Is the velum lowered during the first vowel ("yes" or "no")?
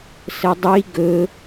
no